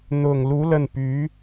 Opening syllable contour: low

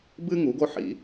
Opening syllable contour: high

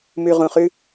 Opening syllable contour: low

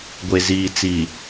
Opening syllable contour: low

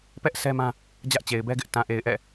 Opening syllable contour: high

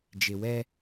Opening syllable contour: low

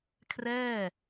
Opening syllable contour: falling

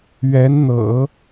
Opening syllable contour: rising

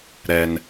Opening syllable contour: low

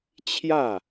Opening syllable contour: falling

